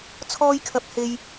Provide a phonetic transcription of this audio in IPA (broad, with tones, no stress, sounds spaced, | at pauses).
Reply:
t͡sʰ ɔː˥ j kʰ ɐ˧ p̚ h e˧ j